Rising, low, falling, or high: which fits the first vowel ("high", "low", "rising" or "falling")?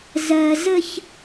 low